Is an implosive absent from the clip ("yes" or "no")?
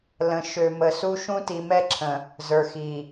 yes